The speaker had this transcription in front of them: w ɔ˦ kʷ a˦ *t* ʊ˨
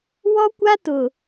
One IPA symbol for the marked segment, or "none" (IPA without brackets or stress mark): t